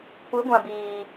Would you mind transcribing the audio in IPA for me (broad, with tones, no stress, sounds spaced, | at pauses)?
kʷ ɨ˨˦ ɡʷ ã˨ b iː˨